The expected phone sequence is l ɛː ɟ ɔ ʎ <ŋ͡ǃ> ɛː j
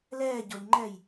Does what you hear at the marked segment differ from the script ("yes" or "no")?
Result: no